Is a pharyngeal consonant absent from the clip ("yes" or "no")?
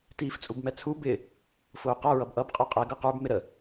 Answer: yes